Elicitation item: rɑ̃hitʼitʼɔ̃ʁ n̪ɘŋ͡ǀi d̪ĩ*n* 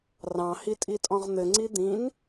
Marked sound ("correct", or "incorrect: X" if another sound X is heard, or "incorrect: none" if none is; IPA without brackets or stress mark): correct